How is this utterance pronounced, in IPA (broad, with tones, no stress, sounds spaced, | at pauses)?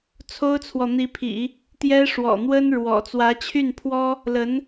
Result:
t͡sʰ o˥ ʊ̯ t͡sʰ w ɔ˨ n̪ i˧˥ pʰ ḭ˨˩˦ | t̪ j ɛ˥ ʂ w ɔ̰˨˩ n̪ w ə˥ n ɻ w ɔ̰˨˩ t͡s w ä˧˥ t͡ɕʰ y˥˩ n pʰ w ɔ˥ | l ə˧˥ n